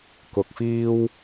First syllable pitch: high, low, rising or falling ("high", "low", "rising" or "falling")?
low